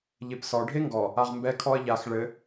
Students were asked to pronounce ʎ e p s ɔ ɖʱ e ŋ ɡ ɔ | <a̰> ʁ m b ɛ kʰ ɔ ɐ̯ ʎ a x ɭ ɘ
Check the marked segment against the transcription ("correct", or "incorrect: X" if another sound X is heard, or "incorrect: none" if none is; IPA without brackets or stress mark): incorrect: a